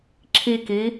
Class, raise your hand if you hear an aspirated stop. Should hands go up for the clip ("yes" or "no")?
yes